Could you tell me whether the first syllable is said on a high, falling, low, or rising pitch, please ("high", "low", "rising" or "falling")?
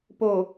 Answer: low